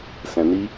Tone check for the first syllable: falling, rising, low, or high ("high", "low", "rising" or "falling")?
low